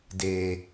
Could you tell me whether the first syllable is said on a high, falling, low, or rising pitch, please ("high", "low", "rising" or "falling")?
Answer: low